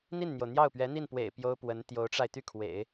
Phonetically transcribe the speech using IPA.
n̪ i˥˩ n n̪ j o˩ ʊ̯ n̪ j ɑ˥˩ ʊ̯ p ɥ ɛ˧˥ n̪ i˥˩ n p w ḛ˨˩ ɪ̯ p j o˥ ʊ̯ p w ə˧˥ n t̪ j o˧˥ ʊ̯ ʈ͡ʂ a˧ ɪ̯ t̪ y˥˩ kʰ w ḛ˨˩˦ ɪ̯

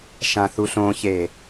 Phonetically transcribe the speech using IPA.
ʃ ã θ u ɬ õ ç e

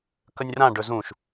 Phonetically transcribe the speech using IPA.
k ə nʲ r ã ɖ ɵ z ũ ʃ

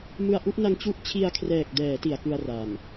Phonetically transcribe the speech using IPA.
m ɯ˧ a̯ ʔ u˥˩ ʔ n a˦˥ ŋ t͡ɕ u˦˥ ʔ t͡ɕʰ i˧ a̯ kʰ r ɛː˨˩ k̚ d ɛː˩˦ t i˩˦ a̯ k ɯ˧ a̯ r a˨˩ m

